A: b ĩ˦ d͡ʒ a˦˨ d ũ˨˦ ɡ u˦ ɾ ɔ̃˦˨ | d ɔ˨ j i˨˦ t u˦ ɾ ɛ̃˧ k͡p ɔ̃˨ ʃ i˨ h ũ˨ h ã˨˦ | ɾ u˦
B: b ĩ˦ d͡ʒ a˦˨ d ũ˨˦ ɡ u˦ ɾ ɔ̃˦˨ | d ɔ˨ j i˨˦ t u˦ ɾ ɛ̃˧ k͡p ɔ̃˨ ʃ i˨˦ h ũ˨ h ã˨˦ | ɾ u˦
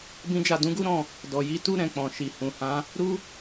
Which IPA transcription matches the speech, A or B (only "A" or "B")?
A